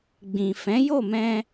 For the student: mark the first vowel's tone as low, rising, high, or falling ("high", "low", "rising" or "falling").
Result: low